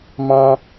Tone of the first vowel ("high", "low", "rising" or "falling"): high